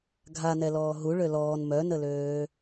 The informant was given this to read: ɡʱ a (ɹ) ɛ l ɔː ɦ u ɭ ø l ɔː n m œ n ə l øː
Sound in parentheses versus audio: incorrect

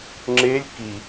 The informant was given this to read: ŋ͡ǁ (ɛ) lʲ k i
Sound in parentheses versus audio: incorrect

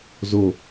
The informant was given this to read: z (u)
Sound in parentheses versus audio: incorrect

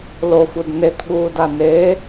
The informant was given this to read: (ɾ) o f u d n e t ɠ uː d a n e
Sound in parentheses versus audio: incorrect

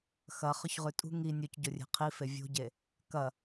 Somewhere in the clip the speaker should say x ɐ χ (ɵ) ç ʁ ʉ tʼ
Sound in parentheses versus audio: correct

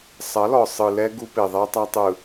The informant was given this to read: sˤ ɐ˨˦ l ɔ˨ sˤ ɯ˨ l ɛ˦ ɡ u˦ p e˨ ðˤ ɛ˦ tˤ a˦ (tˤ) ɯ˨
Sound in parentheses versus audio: correct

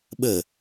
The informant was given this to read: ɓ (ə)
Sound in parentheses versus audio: correct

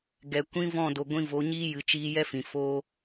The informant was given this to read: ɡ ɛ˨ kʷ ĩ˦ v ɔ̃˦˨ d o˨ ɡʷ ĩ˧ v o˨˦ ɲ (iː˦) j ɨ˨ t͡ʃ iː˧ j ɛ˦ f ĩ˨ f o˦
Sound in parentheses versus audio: correct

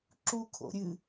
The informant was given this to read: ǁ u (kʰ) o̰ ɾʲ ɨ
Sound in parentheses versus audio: correct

